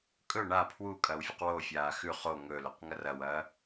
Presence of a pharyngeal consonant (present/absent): absent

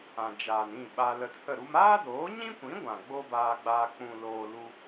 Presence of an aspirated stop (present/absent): absent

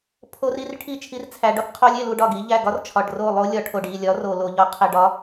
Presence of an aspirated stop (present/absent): present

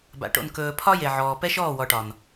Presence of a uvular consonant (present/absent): absent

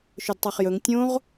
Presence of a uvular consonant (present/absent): present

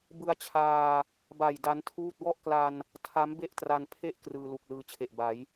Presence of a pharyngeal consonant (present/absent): absent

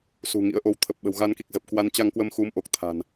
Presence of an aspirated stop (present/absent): present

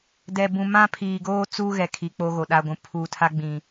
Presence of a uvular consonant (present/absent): absent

